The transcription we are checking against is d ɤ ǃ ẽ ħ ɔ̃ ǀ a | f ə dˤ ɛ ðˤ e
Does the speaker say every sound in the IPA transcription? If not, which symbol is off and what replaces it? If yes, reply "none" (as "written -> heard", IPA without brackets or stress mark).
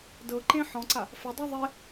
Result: none